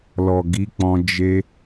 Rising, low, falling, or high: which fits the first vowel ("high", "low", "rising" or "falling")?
low